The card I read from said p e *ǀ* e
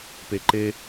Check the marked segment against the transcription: incorrect: ǃ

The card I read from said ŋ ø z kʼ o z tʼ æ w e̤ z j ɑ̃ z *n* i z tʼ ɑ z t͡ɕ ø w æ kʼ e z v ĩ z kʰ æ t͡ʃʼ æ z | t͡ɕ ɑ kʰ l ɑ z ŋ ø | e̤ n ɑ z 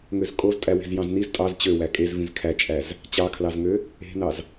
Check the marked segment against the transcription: correct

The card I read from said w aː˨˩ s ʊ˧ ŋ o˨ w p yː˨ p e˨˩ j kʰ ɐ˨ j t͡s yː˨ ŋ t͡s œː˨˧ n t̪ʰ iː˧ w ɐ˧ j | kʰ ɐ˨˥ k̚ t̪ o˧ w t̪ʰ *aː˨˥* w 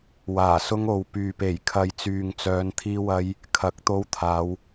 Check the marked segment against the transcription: incorrect: aː˨˧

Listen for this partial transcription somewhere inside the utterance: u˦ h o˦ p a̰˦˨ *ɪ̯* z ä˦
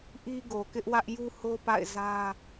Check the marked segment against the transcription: correct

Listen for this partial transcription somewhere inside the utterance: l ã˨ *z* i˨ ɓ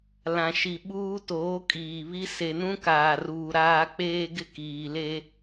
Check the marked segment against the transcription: incorrect: ʃ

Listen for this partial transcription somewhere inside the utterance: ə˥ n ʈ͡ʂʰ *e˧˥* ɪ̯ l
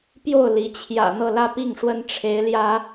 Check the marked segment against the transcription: correct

